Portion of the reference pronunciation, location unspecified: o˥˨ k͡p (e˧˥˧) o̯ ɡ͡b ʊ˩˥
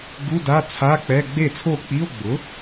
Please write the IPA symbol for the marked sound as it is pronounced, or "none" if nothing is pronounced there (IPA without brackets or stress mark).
i˧˥˧